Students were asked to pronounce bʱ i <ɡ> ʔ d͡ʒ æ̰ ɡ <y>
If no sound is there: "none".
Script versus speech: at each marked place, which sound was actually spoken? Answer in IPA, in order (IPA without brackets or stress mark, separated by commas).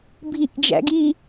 none, i